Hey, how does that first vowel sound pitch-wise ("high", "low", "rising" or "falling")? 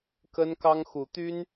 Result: high